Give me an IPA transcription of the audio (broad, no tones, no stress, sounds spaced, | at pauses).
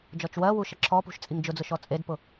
d͡ʒ ɔ t͡ʃ w ɜ w u ʃ ə ǁʰ ɔ p ṳ ʃ t͡sʼ i ŋ d͡ʒ ʊ d͡z ʊ ʃ ɔ t͡sʼ e d p ʊ